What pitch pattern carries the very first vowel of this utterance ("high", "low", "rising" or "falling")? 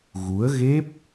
rising